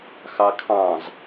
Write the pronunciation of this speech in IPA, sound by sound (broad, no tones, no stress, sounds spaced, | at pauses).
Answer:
x ɑ kʰ ɑ̃ z